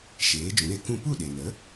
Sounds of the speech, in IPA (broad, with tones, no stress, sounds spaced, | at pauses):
ʃ eː˨˦ d͡ʒ ũ˨˦ ɾ e˧ k ũ˦˨ p u˦˨ ɗ e˨ n ə˨˦